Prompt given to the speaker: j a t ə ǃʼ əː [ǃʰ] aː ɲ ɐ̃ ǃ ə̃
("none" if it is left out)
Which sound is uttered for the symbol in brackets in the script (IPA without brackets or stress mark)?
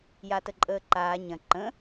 ǃ